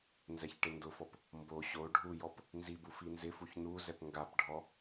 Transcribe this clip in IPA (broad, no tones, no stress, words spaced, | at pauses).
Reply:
nzɛçʈɪndʊfɔp | mbo ɕo ɖʱujɔp | nzi bufinzɪfuç nu zɛpŋɡapɖʱɔ